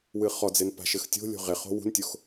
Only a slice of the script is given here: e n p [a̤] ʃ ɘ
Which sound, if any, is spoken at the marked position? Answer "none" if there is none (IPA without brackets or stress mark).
a̤